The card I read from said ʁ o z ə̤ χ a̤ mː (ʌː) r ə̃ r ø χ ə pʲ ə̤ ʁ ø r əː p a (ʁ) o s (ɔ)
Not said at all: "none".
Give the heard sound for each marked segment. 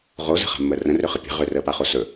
əː, χ, ɵ

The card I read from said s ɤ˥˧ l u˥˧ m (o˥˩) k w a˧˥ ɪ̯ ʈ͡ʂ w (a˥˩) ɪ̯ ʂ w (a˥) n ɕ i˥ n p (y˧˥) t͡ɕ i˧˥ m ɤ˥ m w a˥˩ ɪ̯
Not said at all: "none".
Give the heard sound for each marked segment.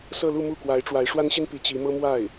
u˥˩, a˧˥, a˥, i˧˥

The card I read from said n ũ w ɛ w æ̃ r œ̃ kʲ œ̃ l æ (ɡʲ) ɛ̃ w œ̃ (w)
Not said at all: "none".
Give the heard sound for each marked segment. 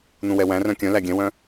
ɡʲ, none

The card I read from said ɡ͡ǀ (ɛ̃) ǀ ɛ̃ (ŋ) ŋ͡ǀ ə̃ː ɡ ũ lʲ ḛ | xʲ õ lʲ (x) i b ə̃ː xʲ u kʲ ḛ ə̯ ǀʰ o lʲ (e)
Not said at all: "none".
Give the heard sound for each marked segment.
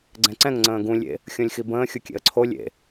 ɛ̃, ŋ, x, ḛ

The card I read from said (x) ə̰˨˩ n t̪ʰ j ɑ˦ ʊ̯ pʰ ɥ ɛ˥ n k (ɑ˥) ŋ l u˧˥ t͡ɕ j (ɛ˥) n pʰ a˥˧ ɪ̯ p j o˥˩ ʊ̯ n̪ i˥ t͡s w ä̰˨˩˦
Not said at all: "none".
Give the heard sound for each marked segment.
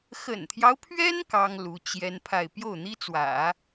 x, ɑ˥, ɛ˥

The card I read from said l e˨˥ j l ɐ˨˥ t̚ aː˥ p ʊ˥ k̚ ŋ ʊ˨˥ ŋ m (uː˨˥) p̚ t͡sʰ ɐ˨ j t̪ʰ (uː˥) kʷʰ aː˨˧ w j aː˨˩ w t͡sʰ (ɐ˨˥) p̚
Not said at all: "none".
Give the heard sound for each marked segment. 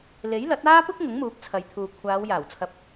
uː˨˥, uː˨, ɐ˨˥

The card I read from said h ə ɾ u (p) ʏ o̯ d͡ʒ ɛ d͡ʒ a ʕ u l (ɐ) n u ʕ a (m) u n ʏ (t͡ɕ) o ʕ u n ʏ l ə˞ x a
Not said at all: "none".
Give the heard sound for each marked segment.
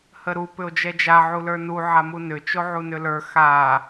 p, ə˞, m, t͡ʃ

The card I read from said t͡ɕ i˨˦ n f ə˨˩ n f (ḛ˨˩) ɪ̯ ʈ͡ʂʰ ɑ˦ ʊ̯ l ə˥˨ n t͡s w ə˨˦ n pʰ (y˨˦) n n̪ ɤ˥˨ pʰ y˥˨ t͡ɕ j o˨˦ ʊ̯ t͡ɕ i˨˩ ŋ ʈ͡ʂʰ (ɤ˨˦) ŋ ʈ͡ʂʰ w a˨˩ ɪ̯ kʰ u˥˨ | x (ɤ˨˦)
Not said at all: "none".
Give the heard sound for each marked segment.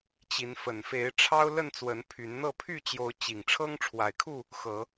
e˨˦, y˨˦, ɤ˦, ɤ˨˦

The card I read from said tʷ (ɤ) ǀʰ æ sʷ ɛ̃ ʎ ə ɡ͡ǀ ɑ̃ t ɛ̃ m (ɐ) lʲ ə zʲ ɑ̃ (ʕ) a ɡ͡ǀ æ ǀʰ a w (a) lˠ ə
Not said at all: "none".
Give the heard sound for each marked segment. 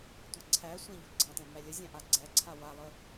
ɤ, æ, ʔ, a

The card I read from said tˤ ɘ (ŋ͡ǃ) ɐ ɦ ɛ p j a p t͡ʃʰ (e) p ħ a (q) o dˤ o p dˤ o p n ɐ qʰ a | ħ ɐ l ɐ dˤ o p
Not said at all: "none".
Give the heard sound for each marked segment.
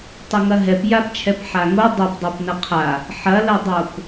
ŋ, ɛ, ŋ

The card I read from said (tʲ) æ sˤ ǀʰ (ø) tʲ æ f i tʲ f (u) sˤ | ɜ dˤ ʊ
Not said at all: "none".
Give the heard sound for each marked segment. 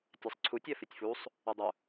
tʲ, u, u

